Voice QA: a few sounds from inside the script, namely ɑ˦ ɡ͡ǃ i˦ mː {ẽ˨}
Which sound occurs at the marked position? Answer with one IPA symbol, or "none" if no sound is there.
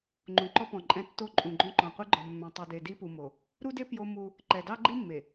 e˨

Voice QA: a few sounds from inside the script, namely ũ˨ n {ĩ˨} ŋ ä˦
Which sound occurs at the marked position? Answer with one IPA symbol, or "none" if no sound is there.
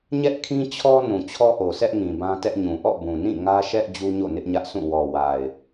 ĩ˦˨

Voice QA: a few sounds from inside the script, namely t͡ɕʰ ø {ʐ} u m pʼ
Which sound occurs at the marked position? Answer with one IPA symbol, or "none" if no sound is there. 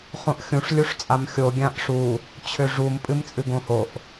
ʐ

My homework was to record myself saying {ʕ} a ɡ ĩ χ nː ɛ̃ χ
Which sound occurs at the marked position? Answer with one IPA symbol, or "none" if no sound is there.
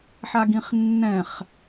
ħ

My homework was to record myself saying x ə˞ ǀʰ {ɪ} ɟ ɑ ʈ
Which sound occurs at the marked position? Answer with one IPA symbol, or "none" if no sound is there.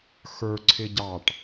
ɪ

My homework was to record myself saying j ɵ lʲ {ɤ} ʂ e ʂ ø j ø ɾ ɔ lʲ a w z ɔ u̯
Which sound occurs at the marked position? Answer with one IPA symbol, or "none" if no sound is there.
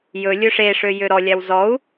ɵ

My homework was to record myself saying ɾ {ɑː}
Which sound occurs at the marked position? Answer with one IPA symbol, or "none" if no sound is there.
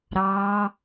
ɑː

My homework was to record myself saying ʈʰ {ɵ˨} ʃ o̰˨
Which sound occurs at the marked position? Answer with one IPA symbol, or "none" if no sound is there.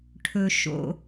ɵ˨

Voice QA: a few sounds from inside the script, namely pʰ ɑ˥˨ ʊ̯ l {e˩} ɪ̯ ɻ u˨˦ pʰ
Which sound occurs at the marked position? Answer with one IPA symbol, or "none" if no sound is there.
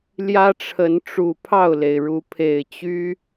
e˩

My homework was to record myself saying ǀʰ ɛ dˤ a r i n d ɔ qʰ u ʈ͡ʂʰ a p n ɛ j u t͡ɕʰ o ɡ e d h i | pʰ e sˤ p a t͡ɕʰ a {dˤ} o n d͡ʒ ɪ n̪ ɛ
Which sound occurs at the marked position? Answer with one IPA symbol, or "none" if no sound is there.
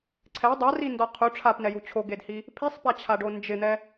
ɖ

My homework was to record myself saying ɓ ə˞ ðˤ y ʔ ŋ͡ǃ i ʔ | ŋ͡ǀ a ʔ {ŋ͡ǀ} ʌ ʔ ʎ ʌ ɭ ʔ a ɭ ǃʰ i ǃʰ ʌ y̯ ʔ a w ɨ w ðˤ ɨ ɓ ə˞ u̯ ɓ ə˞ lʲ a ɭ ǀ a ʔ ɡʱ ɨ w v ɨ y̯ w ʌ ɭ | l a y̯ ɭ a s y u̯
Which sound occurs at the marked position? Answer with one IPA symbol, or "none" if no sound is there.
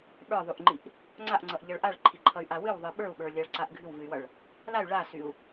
ŋ͡ǀ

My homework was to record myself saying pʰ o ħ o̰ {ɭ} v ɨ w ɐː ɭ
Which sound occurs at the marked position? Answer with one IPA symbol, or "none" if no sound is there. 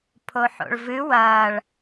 ɭ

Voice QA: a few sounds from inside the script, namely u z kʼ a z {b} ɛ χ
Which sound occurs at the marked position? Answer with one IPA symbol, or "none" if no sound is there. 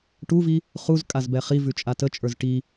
b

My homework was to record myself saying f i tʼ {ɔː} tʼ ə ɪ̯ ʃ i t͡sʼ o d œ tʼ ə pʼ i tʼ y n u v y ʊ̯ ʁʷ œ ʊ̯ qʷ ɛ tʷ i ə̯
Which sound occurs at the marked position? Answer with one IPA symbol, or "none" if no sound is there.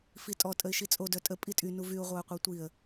ɔ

